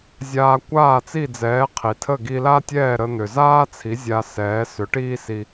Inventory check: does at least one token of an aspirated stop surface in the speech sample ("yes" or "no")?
yes